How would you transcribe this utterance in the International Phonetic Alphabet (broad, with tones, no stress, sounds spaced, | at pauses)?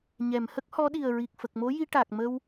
ɲ ɛ˨˩˨ m h ə˦˥ k̚ h ɔ˧˥ ɗ i˨˩ ə̯ ɹ i˨˩ k̚ f ə˨˩ k̚ m o˧˥ j i˧ ʈ a˨˩ k̚ m ə˧ w